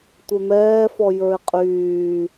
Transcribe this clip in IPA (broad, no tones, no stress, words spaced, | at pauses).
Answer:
tʷɛmɛːfɔ jə˞ɪ̯qʼyː